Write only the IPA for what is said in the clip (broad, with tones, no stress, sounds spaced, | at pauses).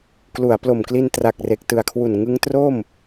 k l u˩˦ a̯ p l o˨˩ m k l i˧ n t r a˨˩ k̚ r e˨˩ k̚ t ɯ˨˩ a̯ kʰ w u˨˩ n ŋ ɯ˦˥ ŋ t r o˥˩ m